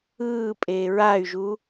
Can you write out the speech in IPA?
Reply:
ɯːpʼe ɹay̯ʒu

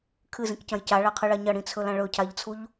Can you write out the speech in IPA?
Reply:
kʰɨzĩkcɐ̃j caɭaqʰɨɭa ɲɐɽĩt͡sʰɵlã ɭɵcʰaʎt͡sʰuʎ

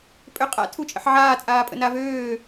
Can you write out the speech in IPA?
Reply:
pʼøqʼa̰ tʰut͡ʃʼə̰ħʕaː t͡sʼaːpʼə̰navøː

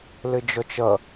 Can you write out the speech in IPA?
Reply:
lɘd͡ʒɔt͡ʃʌ

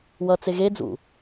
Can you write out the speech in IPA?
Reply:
wʌt͡se ɣed͡zṵ

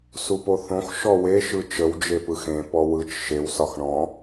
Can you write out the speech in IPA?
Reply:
supoθõx ʃɔwe ʃɯt͡ʃəw d͡ʒepɯxẽ pɔwɯt͡ʃ ʃew sɒxɳɔ̃

